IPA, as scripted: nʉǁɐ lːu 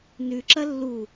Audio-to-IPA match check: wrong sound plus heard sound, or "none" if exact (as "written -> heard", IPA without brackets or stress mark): none